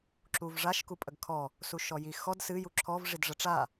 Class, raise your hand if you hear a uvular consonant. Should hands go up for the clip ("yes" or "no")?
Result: no